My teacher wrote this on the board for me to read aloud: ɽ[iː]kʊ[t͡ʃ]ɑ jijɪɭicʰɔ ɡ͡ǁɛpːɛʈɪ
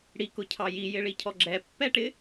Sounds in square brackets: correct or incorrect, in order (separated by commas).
incorrect, incorrect